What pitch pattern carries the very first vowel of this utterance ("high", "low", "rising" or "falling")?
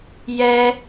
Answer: high